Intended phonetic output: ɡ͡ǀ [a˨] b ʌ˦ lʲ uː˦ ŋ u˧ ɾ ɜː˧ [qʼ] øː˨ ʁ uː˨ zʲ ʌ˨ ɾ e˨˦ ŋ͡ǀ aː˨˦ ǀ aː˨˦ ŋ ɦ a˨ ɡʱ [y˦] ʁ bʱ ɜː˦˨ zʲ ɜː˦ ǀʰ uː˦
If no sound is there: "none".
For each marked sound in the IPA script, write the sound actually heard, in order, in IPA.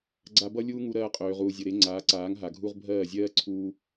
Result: a˧, qʼ, u˦

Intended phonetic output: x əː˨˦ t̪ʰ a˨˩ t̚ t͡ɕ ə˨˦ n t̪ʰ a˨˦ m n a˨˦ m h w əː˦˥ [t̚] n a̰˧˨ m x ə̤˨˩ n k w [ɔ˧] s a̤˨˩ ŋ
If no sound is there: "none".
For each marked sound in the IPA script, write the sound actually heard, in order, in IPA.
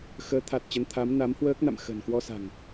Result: k̚, ɔ˧

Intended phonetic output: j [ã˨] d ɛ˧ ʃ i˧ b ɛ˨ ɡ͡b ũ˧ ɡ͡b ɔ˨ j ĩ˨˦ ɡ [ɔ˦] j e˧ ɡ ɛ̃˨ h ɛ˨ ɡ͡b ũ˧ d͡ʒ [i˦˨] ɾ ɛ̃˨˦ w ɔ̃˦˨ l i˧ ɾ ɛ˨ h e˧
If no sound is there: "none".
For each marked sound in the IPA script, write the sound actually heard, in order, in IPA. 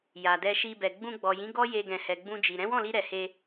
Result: a˨, ɔ˦, i˨

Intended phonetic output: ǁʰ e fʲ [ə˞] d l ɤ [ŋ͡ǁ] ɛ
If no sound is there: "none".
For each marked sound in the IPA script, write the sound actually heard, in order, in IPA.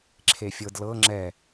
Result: ɤ, ŋ͡ǁ

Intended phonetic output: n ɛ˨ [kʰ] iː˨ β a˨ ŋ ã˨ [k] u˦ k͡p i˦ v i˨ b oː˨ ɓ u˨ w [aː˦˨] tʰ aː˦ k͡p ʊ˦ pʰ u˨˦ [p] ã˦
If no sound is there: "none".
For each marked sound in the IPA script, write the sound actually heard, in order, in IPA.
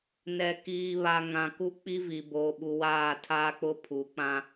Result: k, k, aː˦˨, k͡p

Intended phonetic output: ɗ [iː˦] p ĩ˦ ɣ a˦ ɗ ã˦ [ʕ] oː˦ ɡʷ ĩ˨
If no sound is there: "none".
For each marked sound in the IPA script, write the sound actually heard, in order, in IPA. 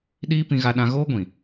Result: iː˦, ɣ

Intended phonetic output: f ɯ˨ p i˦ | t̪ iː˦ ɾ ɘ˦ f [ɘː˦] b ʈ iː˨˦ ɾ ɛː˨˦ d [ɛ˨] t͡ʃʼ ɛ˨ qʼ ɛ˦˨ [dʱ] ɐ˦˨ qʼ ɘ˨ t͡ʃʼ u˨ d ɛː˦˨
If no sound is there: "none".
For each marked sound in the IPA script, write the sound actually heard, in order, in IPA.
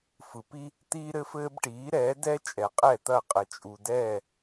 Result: ɘː˦, ɛ˦, t̪

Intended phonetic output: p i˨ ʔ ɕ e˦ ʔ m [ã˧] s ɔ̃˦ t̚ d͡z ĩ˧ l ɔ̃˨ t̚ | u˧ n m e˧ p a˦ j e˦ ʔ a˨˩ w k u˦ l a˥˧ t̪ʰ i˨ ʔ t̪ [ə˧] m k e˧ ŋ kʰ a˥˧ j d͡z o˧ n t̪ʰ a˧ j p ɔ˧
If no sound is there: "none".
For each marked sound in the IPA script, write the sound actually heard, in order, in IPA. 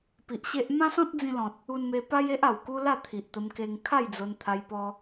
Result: ã˦, ə˧

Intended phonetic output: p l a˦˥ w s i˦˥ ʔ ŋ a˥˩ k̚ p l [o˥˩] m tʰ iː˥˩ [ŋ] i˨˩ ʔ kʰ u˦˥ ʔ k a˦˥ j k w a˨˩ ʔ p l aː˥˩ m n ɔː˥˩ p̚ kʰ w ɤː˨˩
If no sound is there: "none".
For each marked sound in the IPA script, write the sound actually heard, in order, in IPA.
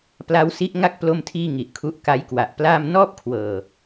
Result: o˥˩, ŋ

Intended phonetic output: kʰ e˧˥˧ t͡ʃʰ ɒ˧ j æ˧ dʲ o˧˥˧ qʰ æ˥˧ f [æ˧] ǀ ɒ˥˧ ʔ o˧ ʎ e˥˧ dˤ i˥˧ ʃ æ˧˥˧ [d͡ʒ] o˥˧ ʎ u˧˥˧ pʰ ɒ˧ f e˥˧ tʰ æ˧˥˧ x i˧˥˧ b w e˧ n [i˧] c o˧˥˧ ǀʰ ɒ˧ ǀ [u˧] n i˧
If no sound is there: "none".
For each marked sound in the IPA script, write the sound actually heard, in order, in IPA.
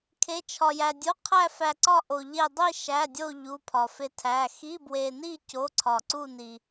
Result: æ˧, dʲ, i˥˧, u˥˧

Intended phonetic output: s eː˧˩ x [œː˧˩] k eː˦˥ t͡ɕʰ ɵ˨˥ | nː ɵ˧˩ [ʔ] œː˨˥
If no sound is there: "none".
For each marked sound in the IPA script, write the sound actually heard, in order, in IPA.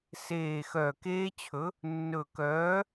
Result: œː˧˩, k

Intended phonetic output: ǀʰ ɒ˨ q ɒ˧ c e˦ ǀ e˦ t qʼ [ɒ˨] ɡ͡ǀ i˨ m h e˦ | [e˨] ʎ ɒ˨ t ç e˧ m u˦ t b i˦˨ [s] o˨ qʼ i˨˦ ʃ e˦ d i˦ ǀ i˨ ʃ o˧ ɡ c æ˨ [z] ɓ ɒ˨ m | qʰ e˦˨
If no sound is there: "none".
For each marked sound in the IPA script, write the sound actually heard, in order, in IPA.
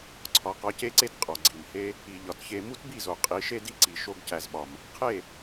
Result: ɒ˨, i˨, z, z

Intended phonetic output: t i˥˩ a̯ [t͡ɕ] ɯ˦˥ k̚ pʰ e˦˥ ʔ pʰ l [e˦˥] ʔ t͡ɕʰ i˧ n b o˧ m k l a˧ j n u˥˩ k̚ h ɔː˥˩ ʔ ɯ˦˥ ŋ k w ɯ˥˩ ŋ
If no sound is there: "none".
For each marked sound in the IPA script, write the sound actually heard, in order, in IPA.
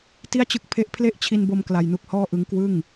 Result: t͡ɕ, e˥˩

